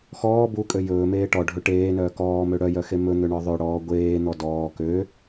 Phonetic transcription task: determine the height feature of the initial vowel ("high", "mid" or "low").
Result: mid